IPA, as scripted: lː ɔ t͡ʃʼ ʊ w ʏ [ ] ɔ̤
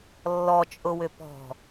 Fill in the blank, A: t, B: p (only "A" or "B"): B